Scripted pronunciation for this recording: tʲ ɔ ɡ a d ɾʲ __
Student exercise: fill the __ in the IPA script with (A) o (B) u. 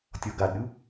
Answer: B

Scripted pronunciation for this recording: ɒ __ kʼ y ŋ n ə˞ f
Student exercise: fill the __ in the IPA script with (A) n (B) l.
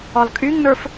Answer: B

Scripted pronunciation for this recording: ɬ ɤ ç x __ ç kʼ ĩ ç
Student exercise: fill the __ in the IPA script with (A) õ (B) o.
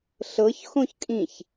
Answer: A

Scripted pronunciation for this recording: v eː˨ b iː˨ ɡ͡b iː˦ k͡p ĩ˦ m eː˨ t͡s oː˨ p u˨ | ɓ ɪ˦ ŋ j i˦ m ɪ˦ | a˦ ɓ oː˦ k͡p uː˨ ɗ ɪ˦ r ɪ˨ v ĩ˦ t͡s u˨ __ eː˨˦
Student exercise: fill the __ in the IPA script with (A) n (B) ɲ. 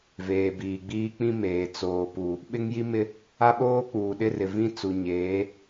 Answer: B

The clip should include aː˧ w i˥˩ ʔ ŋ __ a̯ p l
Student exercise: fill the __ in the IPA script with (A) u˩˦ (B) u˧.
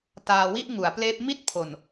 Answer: A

